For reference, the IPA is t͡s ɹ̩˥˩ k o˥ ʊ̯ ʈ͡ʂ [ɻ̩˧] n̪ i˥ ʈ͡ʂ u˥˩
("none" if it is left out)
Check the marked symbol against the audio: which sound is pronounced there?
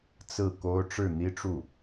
ɻ̩˥˩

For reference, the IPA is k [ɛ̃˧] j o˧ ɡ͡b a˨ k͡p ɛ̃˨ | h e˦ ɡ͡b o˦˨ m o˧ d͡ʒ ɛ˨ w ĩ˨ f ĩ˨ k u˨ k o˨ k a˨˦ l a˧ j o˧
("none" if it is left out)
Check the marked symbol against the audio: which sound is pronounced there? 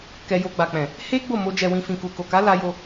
ɛ˧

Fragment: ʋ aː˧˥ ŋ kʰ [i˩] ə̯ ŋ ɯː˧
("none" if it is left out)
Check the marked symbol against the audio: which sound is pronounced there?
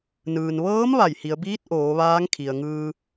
i˩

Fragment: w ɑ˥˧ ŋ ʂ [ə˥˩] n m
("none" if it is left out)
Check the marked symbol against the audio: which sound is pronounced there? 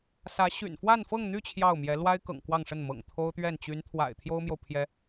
ə˥˩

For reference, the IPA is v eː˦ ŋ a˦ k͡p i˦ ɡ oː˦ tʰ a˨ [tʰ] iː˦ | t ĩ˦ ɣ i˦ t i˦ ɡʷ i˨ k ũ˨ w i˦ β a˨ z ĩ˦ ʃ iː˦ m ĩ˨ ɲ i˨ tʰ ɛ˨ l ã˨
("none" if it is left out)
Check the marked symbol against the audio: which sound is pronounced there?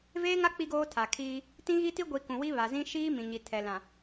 kʰ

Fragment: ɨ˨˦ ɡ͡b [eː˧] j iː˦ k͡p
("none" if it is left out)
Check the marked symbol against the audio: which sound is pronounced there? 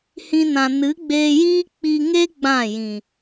eː˧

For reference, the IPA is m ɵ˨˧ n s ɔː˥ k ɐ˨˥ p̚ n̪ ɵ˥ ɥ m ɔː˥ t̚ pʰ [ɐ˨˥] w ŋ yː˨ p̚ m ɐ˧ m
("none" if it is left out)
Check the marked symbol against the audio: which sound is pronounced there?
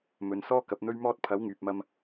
ɐ˨˥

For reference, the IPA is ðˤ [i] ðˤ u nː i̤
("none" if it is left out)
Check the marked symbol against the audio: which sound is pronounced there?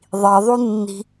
i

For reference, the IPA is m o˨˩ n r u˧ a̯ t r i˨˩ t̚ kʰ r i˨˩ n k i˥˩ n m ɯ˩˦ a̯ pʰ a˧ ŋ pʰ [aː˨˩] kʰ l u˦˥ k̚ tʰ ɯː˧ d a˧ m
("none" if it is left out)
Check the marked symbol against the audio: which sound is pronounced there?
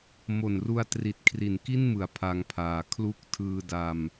aː˨˩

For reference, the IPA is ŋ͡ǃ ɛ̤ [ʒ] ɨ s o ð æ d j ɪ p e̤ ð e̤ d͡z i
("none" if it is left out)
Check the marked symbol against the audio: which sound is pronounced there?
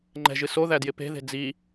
ʒ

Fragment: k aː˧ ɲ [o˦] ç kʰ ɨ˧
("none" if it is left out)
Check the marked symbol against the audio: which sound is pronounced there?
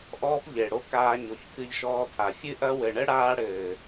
o˨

